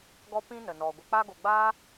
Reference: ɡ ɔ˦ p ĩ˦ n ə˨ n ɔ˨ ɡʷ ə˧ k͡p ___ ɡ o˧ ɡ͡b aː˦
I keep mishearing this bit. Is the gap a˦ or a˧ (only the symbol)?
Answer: a˦